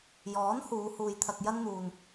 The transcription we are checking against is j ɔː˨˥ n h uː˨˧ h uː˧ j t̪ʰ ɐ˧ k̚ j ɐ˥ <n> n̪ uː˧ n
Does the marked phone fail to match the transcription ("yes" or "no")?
no